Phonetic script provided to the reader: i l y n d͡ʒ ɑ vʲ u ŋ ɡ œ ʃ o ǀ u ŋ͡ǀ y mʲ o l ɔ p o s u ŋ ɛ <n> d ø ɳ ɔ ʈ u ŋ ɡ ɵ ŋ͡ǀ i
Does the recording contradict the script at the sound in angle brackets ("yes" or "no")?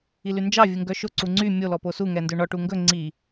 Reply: no